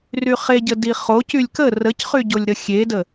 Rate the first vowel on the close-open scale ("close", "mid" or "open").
close